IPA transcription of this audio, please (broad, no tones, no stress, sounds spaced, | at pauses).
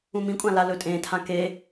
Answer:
ũ m ĩ kʷʼ ã l a l ɵ tʼ ẽ tʰ ã k e